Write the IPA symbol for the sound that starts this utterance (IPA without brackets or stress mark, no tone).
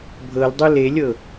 bʱ